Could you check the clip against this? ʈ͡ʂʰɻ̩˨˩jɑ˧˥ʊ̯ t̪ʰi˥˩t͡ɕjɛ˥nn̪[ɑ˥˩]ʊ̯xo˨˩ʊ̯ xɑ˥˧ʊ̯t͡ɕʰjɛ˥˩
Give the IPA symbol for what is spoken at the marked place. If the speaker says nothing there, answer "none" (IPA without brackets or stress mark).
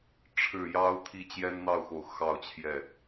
ɑ˥˩